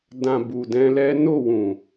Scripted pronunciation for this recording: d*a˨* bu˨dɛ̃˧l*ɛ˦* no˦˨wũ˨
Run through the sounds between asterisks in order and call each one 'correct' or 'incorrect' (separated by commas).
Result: incorrect, correct